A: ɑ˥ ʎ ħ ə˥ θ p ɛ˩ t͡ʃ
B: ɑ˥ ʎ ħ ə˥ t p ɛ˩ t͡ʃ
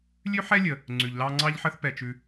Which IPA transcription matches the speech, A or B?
A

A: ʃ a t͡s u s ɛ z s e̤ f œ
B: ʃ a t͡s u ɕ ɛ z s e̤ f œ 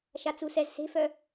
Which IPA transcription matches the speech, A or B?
A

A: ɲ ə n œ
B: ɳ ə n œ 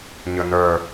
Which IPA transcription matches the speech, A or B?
A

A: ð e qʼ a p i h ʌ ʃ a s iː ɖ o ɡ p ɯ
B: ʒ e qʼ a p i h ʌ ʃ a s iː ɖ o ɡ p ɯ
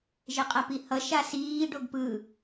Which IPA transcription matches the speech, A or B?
B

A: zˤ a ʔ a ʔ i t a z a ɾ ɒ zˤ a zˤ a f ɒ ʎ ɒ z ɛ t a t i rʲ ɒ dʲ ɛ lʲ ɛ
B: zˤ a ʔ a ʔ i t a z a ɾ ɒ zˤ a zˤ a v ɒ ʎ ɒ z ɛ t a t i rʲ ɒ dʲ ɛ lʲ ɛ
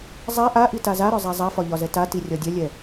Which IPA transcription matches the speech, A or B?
A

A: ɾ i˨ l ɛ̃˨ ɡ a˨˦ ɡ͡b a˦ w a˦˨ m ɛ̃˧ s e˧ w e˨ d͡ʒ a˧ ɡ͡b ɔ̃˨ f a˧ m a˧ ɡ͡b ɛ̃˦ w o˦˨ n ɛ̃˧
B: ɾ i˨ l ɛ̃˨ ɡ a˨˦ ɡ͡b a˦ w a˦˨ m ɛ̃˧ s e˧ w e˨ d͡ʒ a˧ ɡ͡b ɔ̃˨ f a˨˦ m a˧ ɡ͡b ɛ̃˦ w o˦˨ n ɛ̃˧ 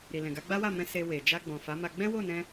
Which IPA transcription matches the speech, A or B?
B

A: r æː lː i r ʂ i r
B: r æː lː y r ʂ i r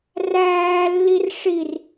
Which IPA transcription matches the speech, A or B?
A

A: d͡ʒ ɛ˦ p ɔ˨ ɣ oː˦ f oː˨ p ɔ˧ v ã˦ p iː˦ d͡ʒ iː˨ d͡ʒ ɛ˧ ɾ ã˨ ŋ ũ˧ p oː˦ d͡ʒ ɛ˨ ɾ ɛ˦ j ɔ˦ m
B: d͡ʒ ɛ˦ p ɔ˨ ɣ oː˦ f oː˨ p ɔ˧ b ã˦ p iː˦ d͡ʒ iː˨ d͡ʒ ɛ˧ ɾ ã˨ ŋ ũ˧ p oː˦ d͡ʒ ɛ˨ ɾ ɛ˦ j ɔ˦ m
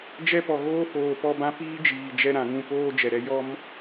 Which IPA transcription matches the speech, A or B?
B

